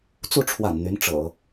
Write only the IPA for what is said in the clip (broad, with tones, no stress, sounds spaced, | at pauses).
t͡s u˥˩ ʈ͡ʂʰ w a̰˨˩ n n̪ y˧˥ n ʈ͡ʂ ɤ̰˨˩˦